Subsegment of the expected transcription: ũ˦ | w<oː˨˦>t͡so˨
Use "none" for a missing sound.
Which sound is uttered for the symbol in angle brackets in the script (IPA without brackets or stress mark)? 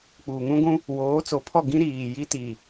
oː˨˦